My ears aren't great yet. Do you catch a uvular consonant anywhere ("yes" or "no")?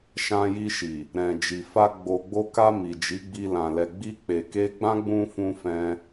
no